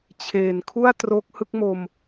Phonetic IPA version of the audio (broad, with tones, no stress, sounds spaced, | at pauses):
t͡ɕʰ eː˨˩ n kʰ u˥˩ a̯ t r o˦˥ k̚ h ɯ˦˥ k̚ m o˧ m